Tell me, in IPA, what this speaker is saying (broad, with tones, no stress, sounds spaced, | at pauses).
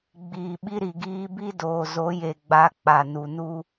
ɡ͡b iː˨ ɓ i˦ ɾ i˨ ɡ iː˦ b i˦ d oː˨ z o˨˦ j e˨ ɡ͡b a˨˦ k͡p a˨ n u˨ n u˦